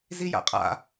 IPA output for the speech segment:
z i j a̰ qʼ a̰

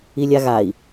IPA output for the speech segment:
i lʲ a ɣ a i̯

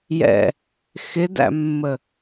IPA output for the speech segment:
j ɛ̰ | x ɪ d æ̰ mː ə

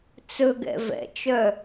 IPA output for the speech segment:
t͡s ɵ ɡ ɛ̰ v ɛ̰ t͡ʃ œ

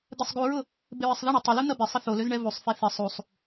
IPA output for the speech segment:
d̪ ɛ sˤ ɡ u ɹ ʊ | b ɪ ɹ ɪ sˤ ð ə ɳ ø tˤ ə l u n̪ ɐ b ɪ sˤ ə θ o l ø z ɳ ɛ v u sˤ f e θ ɪ sˤ u sˤ

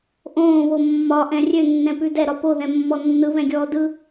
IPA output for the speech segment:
ʔ õː β o mː ɒ ʔ ɛ̃ rʲ ø nː ɛ̃ p ʉ d ɛ ɾ ɒ p o ð ɛ̃ mː ɔ nː ɯ β ɛ̃ ɡʲ ɔː d ɯ

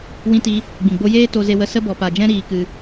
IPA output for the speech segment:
w ĩ˧ t i˧ | ɡ͡b ĩ˨ ɡ͡b o˧ j eː˦ t o˧ z e˧ w ə˧ s ə˧ b ɔ˨ p a˨ d͡ʒ ɛ̃˧ ɾ iː˧ k ɨ˧

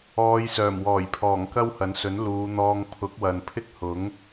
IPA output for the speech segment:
ɔː˨˧ j s œː˨˩ m w ɔː˨˩ j pʰ ɔː˨˩ ŋ k ɐ˥ w h ɐ˨˥ n s ɵ˨˥ n l uː˨˧ n̪ ɔː˧ ŋ pʰ ʊ˨˥ k̚ w ɐ˨ n pʰ ɪ˥ k̚ h ʊ˨˥ ŋ

